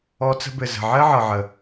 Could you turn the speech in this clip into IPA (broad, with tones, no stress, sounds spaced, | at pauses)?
ɔ˧ t͡s ə̤˧ b ɘ˨ z ə̤˨ ʕ ɘ˦ ʕ ɤ˨ ʕ ə˨